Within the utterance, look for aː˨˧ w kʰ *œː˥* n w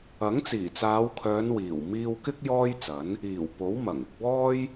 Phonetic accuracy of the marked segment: incorrect: œː˨˧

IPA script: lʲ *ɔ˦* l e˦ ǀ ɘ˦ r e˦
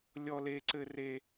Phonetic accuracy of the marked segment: correct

